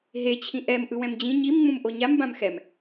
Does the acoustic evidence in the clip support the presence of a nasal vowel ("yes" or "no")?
yes